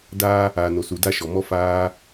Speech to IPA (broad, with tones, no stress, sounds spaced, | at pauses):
d aː˦ | aː˨ n o˨ s u˨ d a˧ ʃ ɔ˨ m ɔ˦ f aː˧